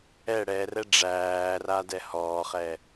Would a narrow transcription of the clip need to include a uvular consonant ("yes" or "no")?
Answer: yes